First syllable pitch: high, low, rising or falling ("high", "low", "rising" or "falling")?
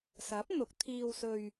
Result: rising